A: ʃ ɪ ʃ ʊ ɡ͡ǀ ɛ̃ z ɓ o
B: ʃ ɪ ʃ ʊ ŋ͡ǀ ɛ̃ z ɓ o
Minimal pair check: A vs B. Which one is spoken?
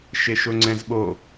B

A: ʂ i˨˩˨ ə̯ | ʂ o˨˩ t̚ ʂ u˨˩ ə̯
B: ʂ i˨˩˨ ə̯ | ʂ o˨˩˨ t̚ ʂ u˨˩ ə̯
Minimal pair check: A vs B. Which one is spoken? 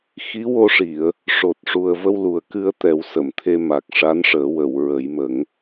A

